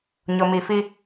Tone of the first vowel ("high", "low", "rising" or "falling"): low